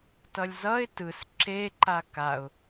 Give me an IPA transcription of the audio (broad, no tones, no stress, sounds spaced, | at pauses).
t ʌ lʲ z ʌ ɪ̯ t ɯ s ǁ e ǃ a k a ʊ̯